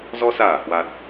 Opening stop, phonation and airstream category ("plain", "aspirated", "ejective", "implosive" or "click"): plain